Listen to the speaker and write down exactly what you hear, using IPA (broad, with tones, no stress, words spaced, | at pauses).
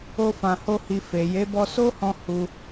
o˧ fã˧ho˦hi˧ fe˨ je˨˦bɔ˧so˦hɔ̃˧ hu˧